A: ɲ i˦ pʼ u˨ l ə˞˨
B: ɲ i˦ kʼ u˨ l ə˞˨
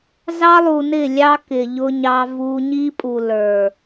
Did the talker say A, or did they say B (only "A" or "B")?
A